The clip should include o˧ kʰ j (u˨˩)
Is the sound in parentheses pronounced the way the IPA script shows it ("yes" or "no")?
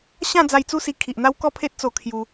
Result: no